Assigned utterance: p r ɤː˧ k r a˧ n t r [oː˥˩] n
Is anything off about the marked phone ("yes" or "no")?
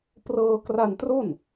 yes